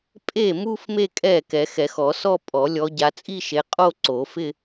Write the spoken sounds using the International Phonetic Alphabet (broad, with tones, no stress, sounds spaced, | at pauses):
pʼ e˥˩ m u˥˧ f m e˥˧ kʼ ɛ˥˩ k ɛ˨˩˦ x ɛ˨˩˦ x ɔ˨˩˦ s ɔ˥˧ pʼ ɔ˨˩˦ lʲ ɔ˨˦ ɟ a˨˦ t͡sʼ i˥˧ ʃ e˨˦ qʼ o˥˧ ǀ o˨˩˦ f ɪ˥˧